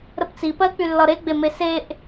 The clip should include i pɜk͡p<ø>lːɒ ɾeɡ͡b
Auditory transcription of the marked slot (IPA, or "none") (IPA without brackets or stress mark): y